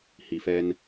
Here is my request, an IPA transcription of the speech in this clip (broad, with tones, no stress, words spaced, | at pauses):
hi˨fɛ˧n